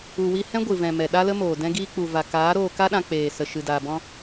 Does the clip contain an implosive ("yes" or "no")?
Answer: yes